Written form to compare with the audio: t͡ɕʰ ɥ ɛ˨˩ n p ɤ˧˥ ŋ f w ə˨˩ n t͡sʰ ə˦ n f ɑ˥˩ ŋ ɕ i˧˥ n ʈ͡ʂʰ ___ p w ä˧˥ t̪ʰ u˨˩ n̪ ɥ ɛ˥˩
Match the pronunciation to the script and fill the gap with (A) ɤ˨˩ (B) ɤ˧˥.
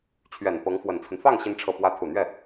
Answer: A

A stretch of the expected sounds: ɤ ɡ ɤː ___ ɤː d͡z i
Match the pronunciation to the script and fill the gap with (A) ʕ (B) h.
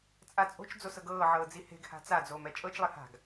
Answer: A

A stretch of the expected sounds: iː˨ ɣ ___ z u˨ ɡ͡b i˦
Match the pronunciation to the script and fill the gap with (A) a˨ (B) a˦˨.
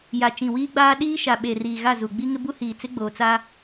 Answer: B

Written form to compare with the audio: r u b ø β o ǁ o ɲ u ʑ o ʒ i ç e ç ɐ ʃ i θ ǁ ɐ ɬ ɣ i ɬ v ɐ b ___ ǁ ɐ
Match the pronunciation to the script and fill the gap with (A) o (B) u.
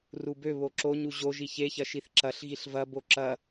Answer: A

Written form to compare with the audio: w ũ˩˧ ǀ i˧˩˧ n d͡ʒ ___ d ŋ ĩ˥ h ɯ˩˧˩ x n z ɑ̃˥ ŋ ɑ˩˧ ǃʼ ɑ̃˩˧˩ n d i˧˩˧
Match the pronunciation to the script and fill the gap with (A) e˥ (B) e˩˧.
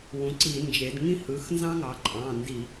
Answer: B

